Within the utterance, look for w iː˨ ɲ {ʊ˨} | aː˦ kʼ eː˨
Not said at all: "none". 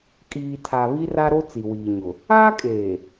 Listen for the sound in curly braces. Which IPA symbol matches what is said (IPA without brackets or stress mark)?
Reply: ʊ˨